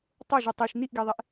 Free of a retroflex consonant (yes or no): yes